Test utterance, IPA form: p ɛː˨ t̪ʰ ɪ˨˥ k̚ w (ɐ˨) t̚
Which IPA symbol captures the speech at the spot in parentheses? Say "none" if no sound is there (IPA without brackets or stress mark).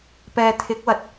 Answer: ɐ˨